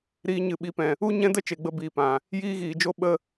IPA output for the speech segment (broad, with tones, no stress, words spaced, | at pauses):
ɾiː˧ ɲɨ˨ɓi˨˦pɛ̃˨ | u˦ ɲɛ̃˦də˦ t͡ʃe˨ɡ͡bə˧ biː˨pã˨ | jiː˦ɣiː˨d͡ʒo˦ ɓə˦